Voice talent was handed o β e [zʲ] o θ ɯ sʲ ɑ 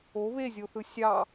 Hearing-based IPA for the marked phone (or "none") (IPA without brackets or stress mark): zʲ